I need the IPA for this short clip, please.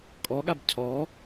kʼ ɔ ɠ a b cʰ ɔ

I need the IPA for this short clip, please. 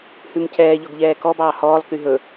h ʉ m c ɛː ʎ ɔ ɡ ʎ ɛː k ɔ b ɑː h ɔː lˠ k y ɦ ɵ

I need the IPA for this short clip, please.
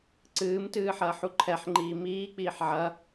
ǀ ɨː m t ɨː ħ ɐː ħ u ǃʰ ɛ ħ ŋ͡ǃ iː m iː k͡p iː ħ ʕ ɐ

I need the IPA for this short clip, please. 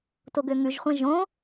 t o ɡ ø ŋ ʉ ʒ χʷ æ̃ ʒ õ

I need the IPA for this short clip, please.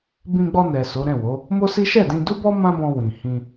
b ĩ˧ ɡ͡b ɔ˧ n ɛ˨ s o˨˦ ɾ ɛ̃˦˨ w o˨˦ | m o˦ s i˦ ʃ ɛ˦˨ d ĩ˧ d u˦ b ɔ˦ m ã˦ b ɔ̃˧ w ĩ˨ h ĩ˧

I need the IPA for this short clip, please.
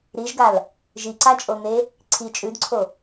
ɾ i ʒ ɡ a l | ʒ i ǀ a t͡ʃʼ o n̪ e | ǀʰ i t͡ʃʼ ʉ d ǀʰ o

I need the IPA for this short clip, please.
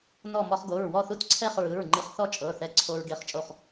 n ɔ˥˨ m ɔ˧ χ ɡ o˩˧˩ ɹ w ɔ˥˨ θ u˥˨ t ǀʰ ɛ˥˨ χ ɹ ɯ˩˧˩ ɹ ŋ͡ǃ ɯ˧ χ θ ɔ˥˨ t͡ʃʼ ɤ˩˧˩ θ ɛ˧ ǀʰ o˧ ɹ ɡ e˧ χ t͡ʃʼ o˥˨ χ

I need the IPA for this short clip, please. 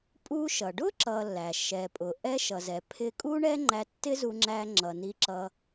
pʼ u˧ ʃ ʌ˩ ɖ ʊ˥ ǁ ʌ˧ lː æ˩ ʃ ɛ˩ pʼ ʊ˩ ʔ ɛ˥ ʃ ʌ˩ z ɛ˩ pʰ ɪ˧ kʼ u˥ ɳ ɛ˥ ŋ͡ǃ æ˧ tː ɪ˥ z u˧ ŋ͡ǁ æ˧ ŋ͡ǁ ʌ˩ n i˧ ǁ ʌ˧

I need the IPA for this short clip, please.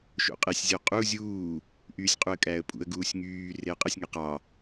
ʃ o̰ qʼ e sʲ zʲ o qʼ u zʲ uː | ʔ yː sʲ qʼ u ə̯ kʼ æː ə̯ pʼ ṵ ə̯ ɡ uː sʲ ŋ yː r e ə̯ qʼ ɯ sʲ ŋ e q ɑ

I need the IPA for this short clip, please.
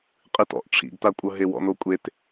qʼ ɨ t ɔ̰ ʔ ʈ͡ʂʰ ḭ ɡ t a kʷʼ ɤ ɦ e w ɔ̰ n o kʷʼ e t

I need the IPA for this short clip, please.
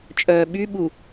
t͡ʃʼ œː ɓ y ɓ u

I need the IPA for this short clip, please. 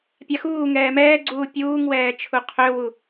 pʲ a x uː ŋ ɛː m ɛː ɡ͡ǀ uː pʲ uː ŋ w ɛː t͡ʃʰ u qʰ ø w u

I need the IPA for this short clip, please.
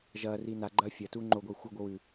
ʒ ɐː r iː n a ɡ͡ǃ ɐː fʲ ɐ t uː ŋ͡ǃ o ɡʷ iː xʷ ɨ ɡʷ ɨ w ʉ

